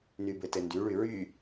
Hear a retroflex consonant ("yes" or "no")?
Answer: yes